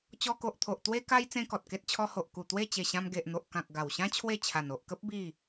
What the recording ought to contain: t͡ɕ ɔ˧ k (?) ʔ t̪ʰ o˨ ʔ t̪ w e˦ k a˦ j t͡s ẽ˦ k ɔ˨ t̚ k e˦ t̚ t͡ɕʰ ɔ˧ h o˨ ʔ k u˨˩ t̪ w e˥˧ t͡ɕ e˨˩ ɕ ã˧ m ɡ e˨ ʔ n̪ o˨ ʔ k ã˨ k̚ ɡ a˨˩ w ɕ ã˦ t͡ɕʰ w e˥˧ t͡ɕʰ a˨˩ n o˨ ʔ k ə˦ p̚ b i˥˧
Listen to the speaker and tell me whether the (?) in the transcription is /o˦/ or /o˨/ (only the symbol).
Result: o˨